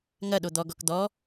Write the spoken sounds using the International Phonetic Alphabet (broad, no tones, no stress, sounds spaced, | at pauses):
ŋ ɐ ɗ o d̪ ɔ ɡ ɔ k d̪ ɔ